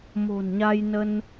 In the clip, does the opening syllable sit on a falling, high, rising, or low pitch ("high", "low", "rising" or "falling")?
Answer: low